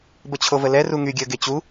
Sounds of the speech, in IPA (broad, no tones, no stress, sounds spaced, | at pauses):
b ə t͡ɕʰ o v ə l ɛ r u ŋ y ɡʲ əː ɡ e t͡ɕ u